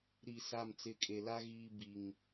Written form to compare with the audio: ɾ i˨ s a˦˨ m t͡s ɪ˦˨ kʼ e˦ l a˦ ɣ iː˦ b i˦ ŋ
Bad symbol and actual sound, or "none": none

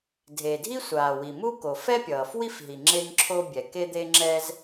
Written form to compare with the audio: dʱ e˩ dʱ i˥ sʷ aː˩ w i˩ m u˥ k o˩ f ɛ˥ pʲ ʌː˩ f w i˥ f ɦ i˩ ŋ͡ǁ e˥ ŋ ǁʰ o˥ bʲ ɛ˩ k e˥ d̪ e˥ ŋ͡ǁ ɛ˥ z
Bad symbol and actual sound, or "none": none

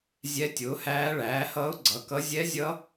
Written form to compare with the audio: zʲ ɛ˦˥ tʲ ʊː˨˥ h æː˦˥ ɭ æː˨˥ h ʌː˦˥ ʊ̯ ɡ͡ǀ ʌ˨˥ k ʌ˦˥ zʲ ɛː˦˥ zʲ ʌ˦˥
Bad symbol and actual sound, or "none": ɛː˦˥ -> ɛ˦˥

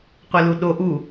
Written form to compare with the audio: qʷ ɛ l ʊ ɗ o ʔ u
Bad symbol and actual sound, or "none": ʊ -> u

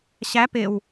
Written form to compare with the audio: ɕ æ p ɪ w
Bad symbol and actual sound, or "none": none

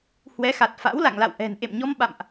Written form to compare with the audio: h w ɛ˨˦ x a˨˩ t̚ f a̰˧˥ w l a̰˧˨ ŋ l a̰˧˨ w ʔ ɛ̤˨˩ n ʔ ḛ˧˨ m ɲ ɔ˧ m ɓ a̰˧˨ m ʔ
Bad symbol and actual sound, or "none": none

